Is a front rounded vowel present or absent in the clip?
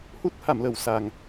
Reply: absent